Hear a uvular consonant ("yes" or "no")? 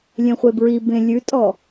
yes